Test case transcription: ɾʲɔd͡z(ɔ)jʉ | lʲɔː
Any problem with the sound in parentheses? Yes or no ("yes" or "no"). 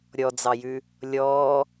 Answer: yes